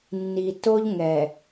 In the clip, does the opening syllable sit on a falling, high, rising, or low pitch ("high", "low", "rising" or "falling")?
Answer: low